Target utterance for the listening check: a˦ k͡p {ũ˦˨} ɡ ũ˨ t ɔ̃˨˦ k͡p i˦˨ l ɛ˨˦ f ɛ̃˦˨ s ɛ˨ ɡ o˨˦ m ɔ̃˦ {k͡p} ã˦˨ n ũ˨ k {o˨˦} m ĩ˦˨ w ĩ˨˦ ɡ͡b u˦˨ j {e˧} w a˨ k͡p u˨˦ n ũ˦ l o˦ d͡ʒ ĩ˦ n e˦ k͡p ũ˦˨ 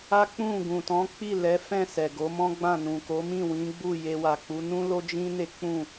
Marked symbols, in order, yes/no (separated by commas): yes, no, yes, yes